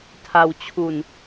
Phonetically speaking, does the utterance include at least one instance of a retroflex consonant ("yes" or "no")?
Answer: no